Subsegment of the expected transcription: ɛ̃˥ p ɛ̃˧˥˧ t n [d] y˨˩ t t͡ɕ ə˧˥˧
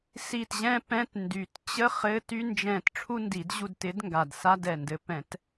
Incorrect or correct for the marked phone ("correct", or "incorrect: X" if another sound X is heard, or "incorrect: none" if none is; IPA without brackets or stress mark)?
correct